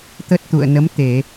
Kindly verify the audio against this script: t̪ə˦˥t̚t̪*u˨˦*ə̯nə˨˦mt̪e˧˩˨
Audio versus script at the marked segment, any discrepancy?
yes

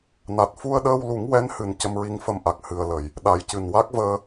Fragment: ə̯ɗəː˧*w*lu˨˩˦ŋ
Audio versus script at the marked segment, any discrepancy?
no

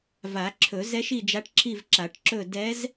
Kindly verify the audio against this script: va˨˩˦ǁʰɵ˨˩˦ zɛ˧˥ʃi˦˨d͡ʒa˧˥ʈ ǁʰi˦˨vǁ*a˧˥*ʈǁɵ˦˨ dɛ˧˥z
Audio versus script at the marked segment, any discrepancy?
yes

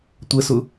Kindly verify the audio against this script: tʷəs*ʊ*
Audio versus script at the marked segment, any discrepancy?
no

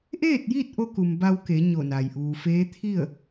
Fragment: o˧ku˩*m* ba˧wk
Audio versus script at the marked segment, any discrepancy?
no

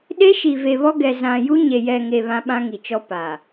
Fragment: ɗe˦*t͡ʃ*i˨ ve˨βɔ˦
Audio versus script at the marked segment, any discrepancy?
yes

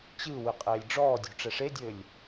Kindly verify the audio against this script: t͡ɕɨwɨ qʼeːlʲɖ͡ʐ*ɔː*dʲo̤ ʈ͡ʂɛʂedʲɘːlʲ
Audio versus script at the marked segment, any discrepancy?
no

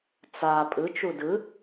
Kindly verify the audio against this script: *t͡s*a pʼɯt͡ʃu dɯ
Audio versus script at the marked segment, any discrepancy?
no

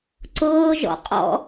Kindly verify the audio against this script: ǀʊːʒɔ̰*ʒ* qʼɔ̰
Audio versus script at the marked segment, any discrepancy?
yes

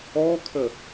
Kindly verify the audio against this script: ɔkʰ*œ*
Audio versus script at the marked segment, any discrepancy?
yes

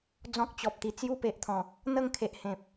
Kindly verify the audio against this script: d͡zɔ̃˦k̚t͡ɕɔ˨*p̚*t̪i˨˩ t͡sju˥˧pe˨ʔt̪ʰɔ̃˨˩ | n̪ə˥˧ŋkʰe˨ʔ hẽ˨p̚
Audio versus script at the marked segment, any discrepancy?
no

